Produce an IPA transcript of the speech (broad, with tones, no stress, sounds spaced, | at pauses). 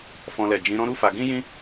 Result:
f ɔ̃˦ l ɛ˦˨ d͡ʒ ĩ˨˦ ɾ ɔ̃˦ ɾ u˦ f a˧ ɡ ĩ˦ j ĩ˦